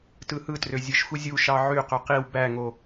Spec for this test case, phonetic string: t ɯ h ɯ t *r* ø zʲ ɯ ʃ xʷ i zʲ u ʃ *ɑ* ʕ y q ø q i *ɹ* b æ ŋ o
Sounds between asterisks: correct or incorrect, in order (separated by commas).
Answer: correct, correct, incorrect